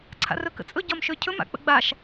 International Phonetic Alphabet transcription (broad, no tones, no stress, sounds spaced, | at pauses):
ǀʰ a̰ r ɵ k ə̰ t͡sʼ ɵ ɟ ɒ m ʃ ø cʰ ɵ m a̰ k͡p ə̰ ɡ͡b a ʃ